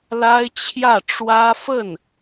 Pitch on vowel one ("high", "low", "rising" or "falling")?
high